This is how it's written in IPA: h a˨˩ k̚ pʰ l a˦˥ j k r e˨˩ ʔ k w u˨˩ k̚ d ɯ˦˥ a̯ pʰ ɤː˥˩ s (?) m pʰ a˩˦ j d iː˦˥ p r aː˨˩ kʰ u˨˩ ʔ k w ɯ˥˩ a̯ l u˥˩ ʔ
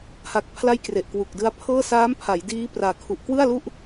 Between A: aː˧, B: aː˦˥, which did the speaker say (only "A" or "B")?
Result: B